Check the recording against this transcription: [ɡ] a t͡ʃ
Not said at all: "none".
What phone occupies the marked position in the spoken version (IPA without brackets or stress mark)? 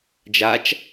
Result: d͡ʒ